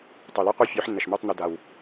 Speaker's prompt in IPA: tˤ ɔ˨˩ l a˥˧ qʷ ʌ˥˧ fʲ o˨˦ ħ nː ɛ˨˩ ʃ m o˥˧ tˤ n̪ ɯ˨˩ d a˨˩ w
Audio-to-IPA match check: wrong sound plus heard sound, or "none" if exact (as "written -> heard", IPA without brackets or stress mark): ɔ˨˩ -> o˨˩